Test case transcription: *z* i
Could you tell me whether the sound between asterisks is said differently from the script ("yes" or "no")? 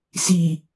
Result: yes